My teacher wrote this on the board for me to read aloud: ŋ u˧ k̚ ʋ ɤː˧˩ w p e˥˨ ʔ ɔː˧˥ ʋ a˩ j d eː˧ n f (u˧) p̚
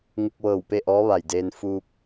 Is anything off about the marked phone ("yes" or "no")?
yes